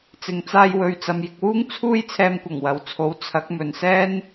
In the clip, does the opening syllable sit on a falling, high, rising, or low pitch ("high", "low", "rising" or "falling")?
low